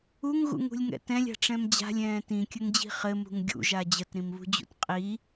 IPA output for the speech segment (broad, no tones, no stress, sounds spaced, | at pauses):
u ŋ ɣ ṵ ŋ ṳ lʲ ŋ ɛ̰ t ɛ̃ lʲ a̤ ʈ͡ʂ ɛ̃ m d͡ʑ a̤ lʲ ɛ̃ː t ĩ kʲ ə ŋ d͡ʑ i̤ χ ɘ m ṳ ŋ ɡʲ ṵ ʒ a d͡ʑ ə t ɾ ĩ m β ṳ d͡ʑ ṵ t qʼ i